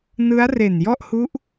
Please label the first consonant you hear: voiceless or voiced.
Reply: voiced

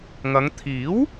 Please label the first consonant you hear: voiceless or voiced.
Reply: voiced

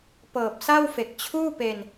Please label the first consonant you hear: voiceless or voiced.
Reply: voiceless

